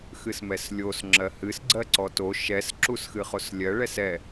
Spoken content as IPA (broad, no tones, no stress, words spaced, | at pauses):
xɨsmɛslʲos ŋ͡ǁɜhɨs ɡ͡ǀɜǀɔto ʃɛs ǁusxɨχoslʲɜ ɭɛsɛ